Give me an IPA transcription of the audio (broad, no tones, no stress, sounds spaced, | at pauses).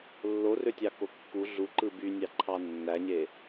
lː o r ø tʲ ɑ k o kː u ɮ u ǃ ɯ b y nʲ ɑ ǃʰ ɑ nː æ ɲ e